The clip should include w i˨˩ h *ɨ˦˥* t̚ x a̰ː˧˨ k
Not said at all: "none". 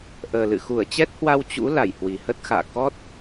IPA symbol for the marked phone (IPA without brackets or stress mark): ə˦˥